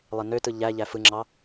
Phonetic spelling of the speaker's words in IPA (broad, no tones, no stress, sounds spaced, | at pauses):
lˠ e n ø t ɯ ʎ æ ʎ æ f ɯ ŋ͡ǁ ɑ